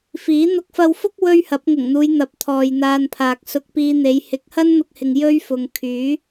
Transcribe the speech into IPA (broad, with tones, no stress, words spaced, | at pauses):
fiː˨˥ n̪ʊ˧k̚fɐ˧wfʊ˥k̚ wɵ˥ɥhɐ˨˥p̚ ŋʊ˨˩ŋn̪uː˨˧j n̪ɐ˨˥p̚t̪ʰɔː˨jn̪aː˧npʰaː˨k̚ sʊ˧k̚piː˧n̪e˨˧j hɪ˨˥k̚hɐ˥nn̪ʊ˧k̚hɪ˨ŋ jɵ˥ɥfʊ˨ŋ kʰyː˨˥